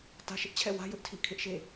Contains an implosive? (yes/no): no